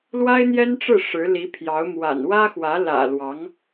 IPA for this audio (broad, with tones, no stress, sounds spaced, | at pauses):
l w a˥ ɪ̯ n̪ j ɛ˥ n ʈ͡ʂ ɻ̩˥˩ ʂ ɻ̩˧˥ l i˧˥ pʰ j ɑ˧˥ ʊ̯ m w a̰˨˩ n w ä˥ x w ä˧˥ l ä̰˨˩ l w ɑ˧˥ ŋ